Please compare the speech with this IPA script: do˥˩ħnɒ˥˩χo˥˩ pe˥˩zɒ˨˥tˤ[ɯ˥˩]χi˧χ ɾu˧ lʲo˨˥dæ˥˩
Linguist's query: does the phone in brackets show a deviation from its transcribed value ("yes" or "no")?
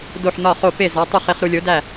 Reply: yes